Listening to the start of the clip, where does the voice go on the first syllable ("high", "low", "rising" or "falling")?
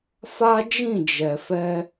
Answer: high